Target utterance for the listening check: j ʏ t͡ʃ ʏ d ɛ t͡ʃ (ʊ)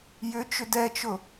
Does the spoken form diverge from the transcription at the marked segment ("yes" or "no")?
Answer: no